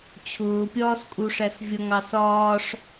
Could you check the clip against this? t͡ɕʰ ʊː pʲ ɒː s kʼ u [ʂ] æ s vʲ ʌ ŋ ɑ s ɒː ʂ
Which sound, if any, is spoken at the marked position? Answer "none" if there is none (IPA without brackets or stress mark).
ʂ